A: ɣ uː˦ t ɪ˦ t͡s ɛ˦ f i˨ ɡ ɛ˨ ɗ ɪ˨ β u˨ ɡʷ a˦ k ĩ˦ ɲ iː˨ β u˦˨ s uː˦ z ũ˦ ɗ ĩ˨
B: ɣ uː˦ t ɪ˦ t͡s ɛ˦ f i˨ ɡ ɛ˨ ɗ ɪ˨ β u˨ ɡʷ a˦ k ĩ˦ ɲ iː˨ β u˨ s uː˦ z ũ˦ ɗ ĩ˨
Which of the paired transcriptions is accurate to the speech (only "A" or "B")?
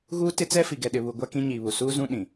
B